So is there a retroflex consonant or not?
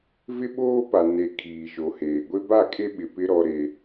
no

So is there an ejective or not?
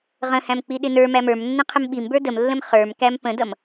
no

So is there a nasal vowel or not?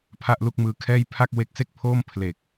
no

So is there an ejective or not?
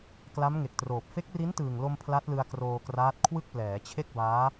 no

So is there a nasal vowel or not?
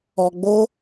no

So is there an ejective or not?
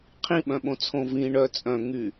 yes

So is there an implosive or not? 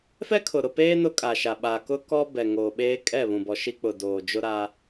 yes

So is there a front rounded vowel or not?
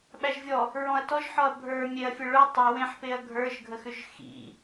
yes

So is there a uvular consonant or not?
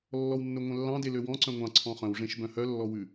yes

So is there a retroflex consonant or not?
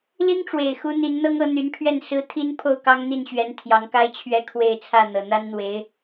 yes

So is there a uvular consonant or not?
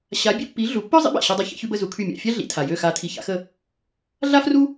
no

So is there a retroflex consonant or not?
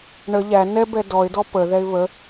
yes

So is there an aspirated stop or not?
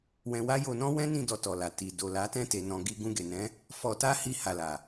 no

